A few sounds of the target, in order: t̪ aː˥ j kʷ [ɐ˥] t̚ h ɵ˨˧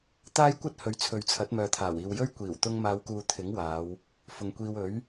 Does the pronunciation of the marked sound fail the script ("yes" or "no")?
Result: no